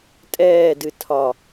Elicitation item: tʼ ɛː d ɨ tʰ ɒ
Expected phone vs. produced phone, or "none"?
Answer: none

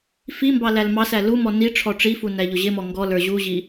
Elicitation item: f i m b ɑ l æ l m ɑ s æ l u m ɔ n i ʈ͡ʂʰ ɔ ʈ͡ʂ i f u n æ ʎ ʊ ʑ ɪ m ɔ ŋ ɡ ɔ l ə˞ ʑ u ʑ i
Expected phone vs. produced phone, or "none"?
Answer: none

